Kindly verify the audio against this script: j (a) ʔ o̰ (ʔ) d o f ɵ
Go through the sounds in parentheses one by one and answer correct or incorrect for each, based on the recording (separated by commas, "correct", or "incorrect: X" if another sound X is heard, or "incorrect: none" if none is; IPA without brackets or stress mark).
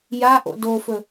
correct, incorrect: none